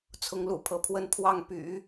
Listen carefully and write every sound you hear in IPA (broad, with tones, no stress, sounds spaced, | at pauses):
t͡sʰ ʊ˧˥ ŋ l ṵ˨˩ pʰ ɤ˧˥ pʰ w ə˥˧ n pʰ w ɑ˥˩ ŋ p y̰˨˩˦